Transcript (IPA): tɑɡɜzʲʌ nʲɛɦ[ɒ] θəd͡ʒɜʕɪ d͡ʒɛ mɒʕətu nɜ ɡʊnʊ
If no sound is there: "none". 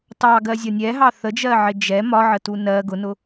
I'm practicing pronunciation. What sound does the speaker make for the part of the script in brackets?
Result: ɑ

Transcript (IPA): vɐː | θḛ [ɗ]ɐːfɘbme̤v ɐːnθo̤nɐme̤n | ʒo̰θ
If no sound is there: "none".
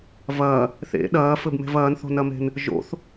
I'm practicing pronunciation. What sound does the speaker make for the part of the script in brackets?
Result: ɗ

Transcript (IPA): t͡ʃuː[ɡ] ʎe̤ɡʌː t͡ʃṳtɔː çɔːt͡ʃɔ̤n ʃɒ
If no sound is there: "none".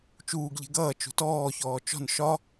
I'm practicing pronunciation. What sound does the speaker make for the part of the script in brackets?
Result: ɡ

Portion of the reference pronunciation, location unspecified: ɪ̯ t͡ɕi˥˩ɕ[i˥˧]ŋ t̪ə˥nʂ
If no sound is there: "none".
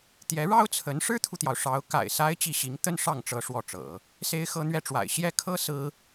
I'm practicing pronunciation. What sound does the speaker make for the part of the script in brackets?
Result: i˧˥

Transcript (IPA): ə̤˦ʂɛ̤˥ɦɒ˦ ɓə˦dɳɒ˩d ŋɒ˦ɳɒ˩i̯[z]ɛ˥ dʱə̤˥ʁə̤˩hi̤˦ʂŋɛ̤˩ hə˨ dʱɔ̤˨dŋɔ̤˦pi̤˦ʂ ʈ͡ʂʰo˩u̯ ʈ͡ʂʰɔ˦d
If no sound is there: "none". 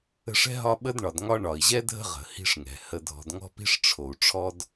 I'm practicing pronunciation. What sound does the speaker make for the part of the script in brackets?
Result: ʑ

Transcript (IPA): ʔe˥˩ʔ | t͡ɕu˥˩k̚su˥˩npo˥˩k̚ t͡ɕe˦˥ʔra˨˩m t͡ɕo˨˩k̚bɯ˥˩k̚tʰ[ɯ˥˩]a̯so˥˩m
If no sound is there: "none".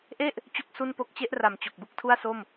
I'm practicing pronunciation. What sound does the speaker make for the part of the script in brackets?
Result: u˥˩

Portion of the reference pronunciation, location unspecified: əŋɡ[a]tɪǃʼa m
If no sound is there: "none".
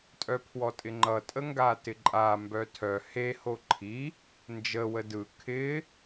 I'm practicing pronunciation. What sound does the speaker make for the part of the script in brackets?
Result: a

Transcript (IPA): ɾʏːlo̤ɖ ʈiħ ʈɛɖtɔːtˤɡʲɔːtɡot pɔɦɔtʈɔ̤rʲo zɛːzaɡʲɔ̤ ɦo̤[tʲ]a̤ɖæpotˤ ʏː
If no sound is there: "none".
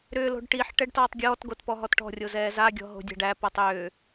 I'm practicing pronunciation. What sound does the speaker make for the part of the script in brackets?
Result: dʲ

